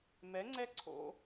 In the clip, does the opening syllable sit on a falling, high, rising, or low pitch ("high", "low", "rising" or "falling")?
rising